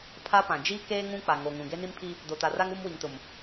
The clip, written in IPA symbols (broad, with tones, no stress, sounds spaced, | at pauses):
pʰ a˦ p ã˨ d͡ʒ iː˦ k eː˦ ŋ ũ˦ k͡p a˨ ŋ o˨ ŋ ũ˨ ɡ e˦ n i˦ m pʰ i˦ | d o˨ t a˨ r a˦ ŋ uː˦ m w i˨ ŋ t ʊ˨ m